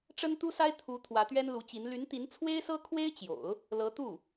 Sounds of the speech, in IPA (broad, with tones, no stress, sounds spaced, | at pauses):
ʈ͡ʂ ə˥ n t̪ u˥ s a˥ ɪ̯ t̪ʰ u˧˥ t̪ʰ w ä˧˥ t̪ ɥ ɛ˥ n l u˧˥ t͡ɕ i˧˥ n l y˧˥ n t̪ i˧˥ n t͡sʰ w e˥ ɪ̯ s ɤ˥ kʰ w e˥ ɪ̯ t͡ɕ j o̰˨˩˦ ʊ̯ | l ɤ˧˥ t̪ u˥˩